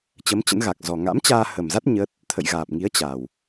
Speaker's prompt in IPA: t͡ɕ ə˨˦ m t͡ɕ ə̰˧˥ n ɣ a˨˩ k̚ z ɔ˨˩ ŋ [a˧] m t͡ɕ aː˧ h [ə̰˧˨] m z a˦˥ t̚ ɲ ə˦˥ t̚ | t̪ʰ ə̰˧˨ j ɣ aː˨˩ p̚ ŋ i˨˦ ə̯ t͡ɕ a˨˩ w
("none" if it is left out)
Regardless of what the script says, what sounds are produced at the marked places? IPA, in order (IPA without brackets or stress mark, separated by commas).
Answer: a̰˧˥, ə˨˩